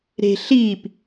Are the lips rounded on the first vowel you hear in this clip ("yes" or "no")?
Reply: no